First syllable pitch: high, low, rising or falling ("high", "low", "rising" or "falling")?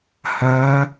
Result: rising